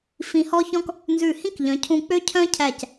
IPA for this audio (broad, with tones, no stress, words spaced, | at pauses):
fĩ˧hɔ˥çɔ̃˥k | nzʉ˧˩hĩ˥kʎœ̃˩˧cʰũ˧ k͡pø˥cʰœ̃˥cʰæ˧˩c